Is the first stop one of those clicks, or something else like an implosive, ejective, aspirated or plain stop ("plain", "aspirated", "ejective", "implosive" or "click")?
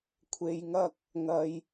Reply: aspirated